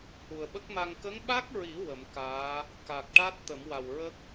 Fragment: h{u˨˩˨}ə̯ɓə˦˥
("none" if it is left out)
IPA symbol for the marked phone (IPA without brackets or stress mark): u˨˩